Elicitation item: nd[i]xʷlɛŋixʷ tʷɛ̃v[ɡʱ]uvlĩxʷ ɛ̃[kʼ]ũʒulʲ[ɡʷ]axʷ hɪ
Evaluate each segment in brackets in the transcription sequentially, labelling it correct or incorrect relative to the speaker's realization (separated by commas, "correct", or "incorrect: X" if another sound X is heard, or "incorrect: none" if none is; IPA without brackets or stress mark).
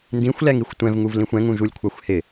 incorrect: ĩ, incorrect: ŋ, incorrect: ŋ, incorrect: kʷʰ